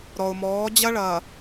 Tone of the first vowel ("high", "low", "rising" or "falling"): low